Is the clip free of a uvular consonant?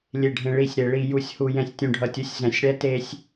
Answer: yes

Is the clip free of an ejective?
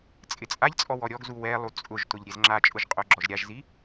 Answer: no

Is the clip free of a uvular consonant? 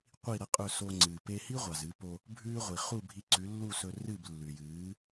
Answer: no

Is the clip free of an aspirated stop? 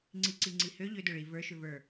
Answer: yes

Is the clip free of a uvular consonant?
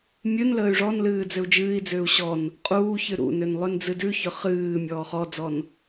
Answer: no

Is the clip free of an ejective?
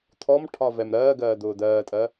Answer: no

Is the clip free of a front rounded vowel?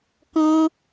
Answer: yes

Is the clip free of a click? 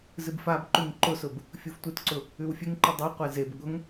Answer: no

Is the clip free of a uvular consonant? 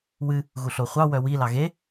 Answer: no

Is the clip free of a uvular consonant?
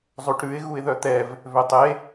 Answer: yes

